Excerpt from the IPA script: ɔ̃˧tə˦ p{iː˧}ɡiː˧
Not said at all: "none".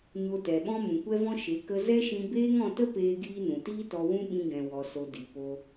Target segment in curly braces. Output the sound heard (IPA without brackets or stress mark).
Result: eː˧